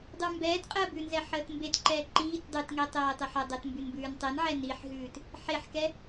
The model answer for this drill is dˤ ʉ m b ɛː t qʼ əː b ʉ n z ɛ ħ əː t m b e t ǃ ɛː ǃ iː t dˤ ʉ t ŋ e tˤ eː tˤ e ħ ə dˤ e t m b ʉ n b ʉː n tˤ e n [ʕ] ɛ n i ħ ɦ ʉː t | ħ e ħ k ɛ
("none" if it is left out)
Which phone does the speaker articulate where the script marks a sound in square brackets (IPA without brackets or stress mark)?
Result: ʕ